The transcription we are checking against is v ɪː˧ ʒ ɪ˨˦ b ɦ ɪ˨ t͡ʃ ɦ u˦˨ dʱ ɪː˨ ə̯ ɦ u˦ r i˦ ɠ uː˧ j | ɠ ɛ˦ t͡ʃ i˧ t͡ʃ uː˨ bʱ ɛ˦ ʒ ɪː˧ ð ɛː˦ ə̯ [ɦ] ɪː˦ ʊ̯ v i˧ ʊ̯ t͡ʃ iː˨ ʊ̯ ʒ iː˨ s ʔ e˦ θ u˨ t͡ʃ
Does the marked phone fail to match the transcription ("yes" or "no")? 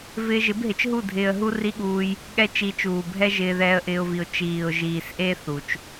yes